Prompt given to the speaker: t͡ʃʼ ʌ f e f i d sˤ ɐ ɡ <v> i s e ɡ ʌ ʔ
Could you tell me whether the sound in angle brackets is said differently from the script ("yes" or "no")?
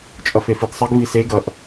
no